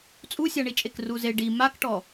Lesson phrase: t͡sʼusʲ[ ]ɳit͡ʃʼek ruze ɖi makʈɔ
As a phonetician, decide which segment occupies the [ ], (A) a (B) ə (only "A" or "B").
A